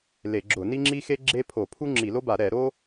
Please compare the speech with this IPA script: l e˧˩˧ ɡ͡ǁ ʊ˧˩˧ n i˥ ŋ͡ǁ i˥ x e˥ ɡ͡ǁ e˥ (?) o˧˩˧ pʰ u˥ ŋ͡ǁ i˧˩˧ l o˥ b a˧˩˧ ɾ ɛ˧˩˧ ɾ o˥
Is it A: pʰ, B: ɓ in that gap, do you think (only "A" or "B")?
A